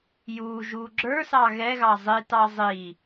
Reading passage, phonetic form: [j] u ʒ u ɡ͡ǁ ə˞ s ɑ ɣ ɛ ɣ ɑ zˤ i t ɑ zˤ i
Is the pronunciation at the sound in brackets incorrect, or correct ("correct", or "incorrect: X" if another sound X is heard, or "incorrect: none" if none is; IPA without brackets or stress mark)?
correct